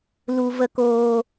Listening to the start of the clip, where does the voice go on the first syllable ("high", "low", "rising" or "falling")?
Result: low